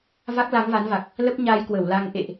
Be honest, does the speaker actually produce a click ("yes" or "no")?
no